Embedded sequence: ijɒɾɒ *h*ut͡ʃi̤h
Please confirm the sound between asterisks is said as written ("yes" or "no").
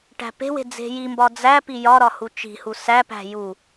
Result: yes